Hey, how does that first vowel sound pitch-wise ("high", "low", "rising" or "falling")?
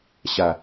low